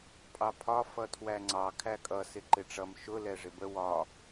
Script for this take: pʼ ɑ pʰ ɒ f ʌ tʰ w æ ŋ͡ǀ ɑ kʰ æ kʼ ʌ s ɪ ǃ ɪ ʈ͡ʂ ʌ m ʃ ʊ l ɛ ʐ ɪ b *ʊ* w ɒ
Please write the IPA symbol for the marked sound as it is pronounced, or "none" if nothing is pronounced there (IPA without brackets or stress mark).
ə